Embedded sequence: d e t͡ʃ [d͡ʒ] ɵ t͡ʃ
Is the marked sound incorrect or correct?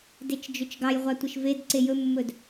correct